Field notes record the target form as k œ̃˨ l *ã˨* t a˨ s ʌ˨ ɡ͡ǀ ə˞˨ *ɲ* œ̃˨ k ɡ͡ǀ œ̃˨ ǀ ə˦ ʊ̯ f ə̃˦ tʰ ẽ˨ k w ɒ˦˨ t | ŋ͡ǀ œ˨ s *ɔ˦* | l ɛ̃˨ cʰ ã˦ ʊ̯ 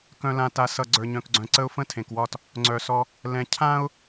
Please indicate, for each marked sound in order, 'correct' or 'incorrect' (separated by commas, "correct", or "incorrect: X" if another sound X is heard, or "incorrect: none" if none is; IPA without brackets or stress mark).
correct, correct, correct